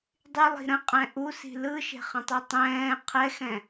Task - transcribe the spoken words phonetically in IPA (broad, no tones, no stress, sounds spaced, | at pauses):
dˤ y lˠ i̤ ɾ ə̃ qʼ ɛ̃ ʔ u s i̤ l ɯ ʃ e̤ χ ə̃ tˤ y tˤ ɛ̃ː qʰ ɛ x ɛ̃